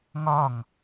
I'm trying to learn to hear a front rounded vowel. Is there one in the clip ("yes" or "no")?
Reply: no